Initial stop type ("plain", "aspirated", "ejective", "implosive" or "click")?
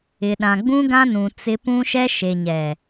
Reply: implosive